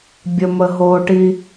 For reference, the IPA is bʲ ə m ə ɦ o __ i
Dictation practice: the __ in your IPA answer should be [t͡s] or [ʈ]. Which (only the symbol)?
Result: ʈ